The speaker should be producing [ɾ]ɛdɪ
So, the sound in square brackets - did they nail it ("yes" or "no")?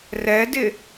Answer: no